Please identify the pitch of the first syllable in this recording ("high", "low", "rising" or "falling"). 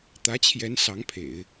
rising